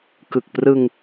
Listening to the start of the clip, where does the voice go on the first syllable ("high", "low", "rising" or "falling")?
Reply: low